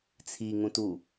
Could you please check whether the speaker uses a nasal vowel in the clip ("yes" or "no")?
yes